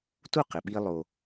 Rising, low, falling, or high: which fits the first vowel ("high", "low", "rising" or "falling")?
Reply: falling